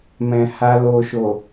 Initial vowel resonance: nasal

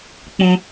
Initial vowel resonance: nasal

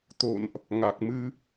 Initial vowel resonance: oral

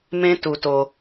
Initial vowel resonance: nasal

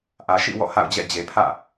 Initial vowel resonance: oral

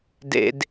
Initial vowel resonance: oral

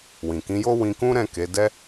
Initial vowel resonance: nasal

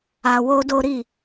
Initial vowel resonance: oral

